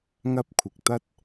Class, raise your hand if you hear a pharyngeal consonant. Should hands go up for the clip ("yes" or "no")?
no